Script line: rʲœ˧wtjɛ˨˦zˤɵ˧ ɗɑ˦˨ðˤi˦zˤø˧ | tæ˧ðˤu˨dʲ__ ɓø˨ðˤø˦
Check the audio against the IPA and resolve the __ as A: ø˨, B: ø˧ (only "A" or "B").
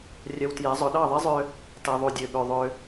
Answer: A